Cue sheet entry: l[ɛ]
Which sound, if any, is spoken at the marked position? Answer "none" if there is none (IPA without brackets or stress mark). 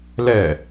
ɛ